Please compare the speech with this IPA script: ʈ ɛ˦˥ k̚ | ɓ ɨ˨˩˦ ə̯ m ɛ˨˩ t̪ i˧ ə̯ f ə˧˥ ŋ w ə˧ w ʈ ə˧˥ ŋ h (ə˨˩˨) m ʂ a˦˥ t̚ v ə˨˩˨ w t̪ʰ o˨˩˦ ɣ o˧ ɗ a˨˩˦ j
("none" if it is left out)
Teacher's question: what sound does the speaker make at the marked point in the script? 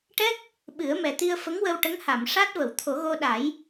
a˨˩˨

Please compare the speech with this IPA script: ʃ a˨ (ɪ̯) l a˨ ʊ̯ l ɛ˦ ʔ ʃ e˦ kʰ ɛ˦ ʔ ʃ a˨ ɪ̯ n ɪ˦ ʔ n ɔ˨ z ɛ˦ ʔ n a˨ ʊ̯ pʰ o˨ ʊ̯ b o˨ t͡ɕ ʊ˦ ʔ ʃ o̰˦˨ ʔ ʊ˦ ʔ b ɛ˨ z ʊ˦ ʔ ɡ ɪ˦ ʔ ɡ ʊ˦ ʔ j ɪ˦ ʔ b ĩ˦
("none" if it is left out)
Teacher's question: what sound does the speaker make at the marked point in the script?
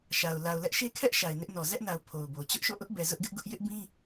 ʊ̯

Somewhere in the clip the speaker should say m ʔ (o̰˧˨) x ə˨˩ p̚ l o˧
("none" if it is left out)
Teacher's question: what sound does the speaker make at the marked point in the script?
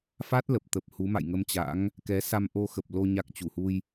o˧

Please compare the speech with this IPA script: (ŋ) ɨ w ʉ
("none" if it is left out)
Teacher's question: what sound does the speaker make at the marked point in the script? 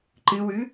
ǃ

